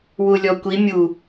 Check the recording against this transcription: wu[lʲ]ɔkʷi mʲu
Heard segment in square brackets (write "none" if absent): lʲ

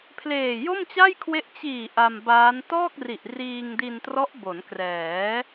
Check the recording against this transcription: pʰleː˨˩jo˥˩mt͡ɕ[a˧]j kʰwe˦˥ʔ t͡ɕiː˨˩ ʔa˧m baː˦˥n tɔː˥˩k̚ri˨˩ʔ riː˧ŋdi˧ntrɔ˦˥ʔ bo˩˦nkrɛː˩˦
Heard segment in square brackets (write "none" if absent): a˥˩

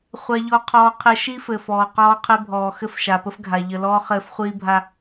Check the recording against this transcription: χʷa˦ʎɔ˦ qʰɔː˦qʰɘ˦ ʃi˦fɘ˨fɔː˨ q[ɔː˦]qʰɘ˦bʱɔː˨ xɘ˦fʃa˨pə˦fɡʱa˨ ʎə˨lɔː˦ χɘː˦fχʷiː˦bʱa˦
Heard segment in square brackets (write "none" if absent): ɔː˦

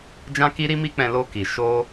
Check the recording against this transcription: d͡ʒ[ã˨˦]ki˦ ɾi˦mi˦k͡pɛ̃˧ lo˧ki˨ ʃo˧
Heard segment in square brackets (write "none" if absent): ã˦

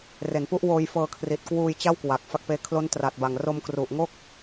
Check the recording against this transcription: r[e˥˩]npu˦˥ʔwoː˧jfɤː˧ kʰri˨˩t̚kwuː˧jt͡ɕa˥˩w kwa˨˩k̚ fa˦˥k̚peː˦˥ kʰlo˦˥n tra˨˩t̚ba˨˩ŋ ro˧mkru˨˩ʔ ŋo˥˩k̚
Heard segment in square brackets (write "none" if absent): e˩˦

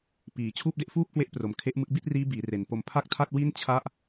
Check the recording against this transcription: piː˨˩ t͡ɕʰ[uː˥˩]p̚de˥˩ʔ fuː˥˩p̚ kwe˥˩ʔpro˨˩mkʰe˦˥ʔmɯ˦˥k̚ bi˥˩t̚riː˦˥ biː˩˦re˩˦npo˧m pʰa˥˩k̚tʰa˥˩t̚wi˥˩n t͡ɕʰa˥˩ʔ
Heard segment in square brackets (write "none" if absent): uː˥˩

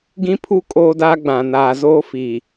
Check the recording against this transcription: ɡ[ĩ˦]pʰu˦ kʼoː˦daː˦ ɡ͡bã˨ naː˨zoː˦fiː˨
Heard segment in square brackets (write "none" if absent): ĩ˦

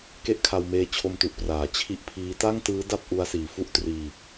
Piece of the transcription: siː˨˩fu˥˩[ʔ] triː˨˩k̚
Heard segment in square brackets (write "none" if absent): ʔ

